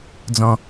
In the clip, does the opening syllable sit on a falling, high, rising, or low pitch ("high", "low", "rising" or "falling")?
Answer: low